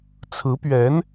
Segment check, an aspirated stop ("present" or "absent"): present